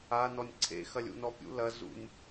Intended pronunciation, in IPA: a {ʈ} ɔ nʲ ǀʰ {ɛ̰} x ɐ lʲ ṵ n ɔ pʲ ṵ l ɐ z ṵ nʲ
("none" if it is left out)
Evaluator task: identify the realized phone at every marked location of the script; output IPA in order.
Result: n, ḛ

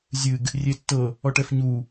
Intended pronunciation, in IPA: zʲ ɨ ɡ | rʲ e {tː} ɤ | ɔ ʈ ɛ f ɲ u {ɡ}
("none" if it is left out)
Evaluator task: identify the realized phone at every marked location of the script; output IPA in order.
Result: tː, none

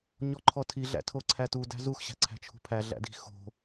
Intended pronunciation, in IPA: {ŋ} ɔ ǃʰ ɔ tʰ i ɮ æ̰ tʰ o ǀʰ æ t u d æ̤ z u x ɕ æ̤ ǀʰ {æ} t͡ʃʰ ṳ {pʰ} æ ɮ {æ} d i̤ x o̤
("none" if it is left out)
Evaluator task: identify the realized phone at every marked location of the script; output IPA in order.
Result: ɲ, æ̤, pʰ, æ̰

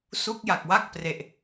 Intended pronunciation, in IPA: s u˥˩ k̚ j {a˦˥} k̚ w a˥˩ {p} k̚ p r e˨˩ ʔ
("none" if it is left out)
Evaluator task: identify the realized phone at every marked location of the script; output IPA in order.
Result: a˨˩, none

